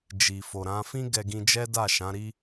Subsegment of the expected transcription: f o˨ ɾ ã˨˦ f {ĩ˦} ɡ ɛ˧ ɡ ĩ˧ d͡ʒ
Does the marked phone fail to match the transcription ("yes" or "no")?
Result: no